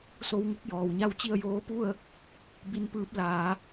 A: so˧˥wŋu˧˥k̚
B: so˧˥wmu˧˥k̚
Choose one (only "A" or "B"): A